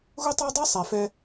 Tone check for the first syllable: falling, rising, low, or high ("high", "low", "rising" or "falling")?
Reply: high